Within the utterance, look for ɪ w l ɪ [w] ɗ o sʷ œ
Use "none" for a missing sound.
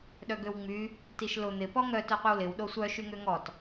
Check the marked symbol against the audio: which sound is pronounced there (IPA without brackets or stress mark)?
w